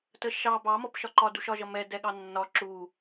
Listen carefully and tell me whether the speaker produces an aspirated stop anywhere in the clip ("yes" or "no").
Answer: no